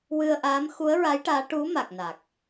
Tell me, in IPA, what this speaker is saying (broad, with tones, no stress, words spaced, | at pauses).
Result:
wɨ˧ə̯ʔaː˧˥m xu˧˥ə̯ɹa˧˥jʈaː˧˥ ʈu˧˥ma˨˩k̚ na˨˩k̚